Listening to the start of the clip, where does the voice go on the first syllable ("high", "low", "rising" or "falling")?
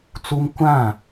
high